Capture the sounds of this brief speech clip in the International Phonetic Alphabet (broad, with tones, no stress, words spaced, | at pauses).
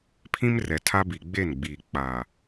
pʰĩ˦mrɛ˨tʰa˦ bi˨ɡ͡be˦˨nɡ͡biː˨ k͡pa˨